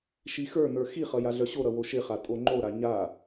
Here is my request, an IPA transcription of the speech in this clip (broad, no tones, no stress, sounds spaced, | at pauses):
ʃ i x ə˞ n̪ ə˞ x i χ ʌ j a ɮ œ ɕ o ɾ ʌ w o ʃ ɪ χ a tʼ o ŋ͡ǃ o ɾ a ɲ a